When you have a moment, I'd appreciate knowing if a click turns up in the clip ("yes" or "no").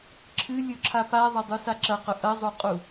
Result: yes